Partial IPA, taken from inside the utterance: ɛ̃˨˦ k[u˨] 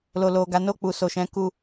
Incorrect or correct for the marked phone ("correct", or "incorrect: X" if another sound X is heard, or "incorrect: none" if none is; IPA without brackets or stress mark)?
incorrect: u˧